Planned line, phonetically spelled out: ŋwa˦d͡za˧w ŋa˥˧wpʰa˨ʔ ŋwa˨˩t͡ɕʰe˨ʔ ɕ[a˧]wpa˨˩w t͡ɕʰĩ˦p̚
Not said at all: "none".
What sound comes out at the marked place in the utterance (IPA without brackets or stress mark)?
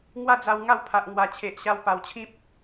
a˧